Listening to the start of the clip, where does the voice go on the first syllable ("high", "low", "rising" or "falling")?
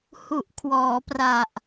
low